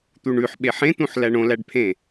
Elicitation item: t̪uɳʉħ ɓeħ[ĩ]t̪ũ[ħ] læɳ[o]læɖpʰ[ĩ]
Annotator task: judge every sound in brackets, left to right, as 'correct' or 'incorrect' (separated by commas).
incorrect, correct, incorrect, incorrect